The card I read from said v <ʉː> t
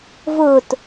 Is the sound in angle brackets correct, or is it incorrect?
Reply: incorrect